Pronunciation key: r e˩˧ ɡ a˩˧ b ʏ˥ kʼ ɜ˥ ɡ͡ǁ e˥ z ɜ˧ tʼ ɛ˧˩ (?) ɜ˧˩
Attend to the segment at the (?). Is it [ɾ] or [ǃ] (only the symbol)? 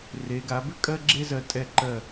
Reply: ǃ